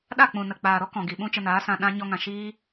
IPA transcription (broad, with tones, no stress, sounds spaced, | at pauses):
ɗ a˦˨ k͡p ũ˨ n ə˨ k͡p aː˨ ɾ ɔ˦ k ɔ̃˨ ɡ i˨ ɓ ũ˦ t͡ʃ ə˧ n aː˨˦ s ã˧ ɗ ã˧ ɲ ɔ˧ ŋ ã˨ ʃ iː˧